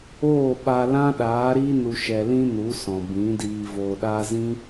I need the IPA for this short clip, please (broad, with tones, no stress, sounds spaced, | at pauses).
oː˦˨ ɓ a˧ l ã˦ ɗ aː˨˦ ɾ i˦ n u˧ ʃ ɛ˧ l ĩ˦ n u˨˦ s ɔ̃˨ b ĩ˨˦ d iː˧ v oː˧ ɗ aː˦ z ĩ˦